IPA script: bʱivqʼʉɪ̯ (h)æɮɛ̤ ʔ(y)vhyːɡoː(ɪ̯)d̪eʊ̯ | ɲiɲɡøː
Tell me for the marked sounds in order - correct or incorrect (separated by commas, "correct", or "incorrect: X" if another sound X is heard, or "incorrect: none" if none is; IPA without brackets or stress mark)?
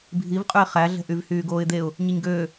incorrect: χ, correct, correct